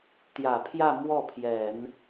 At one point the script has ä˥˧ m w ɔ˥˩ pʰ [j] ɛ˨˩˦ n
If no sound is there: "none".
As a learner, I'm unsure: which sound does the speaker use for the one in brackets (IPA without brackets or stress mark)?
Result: j